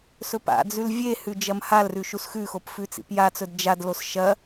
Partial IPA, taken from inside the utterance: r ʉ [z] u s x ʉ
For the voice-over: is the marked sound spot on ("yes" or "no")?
no